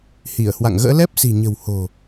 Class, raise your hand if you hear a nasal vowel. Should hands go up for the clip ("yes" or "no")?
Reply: no